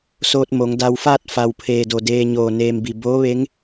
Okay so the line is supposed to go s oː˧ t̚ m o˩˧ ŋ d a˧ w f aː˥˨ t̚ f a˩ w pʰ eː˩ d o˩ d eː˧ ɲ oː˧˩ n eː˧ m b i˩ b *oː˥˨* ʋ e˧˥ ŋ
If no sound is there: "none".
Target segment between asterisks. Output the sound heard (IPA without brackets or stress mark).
oː˧˥